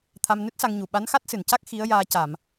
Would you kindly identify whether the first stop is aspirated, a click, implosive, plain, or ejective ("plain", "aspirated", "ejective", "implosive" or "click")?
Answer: aspirated